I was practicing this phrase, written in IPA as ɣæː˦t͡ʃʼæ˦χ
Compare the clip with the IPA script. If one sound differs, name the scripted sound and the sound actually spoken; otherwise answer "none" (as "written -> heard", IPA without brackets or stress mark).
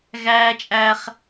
none